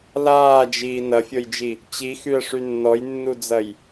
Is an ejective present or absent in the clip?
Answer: absent